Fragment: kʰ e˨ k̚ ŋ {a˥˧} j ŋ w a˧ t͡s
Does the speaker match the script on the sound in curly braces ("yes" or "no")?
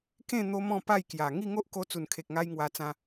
no